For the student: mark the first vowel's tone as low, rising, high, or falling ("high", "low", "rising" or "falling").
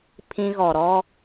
high